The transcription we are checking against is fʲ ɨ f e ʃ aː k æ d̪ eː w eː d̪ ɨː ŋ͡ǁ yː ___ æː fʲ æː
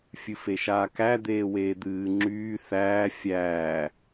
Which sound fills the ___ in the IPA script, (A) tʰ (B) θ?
B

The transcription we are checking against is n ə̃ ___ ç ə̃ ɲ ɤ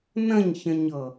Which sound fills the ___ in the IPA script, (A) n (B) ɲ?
B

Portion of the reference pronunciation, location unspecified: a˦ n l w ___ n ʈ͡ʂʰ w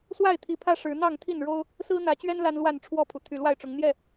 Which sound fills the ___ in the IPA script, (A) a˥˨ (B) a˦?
A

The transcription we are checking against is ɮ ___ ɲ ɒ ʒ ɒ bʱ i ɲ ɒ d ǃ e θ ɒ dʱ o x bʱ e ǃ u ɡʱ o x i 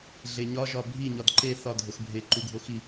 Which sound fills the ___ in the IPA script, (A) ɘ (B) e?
B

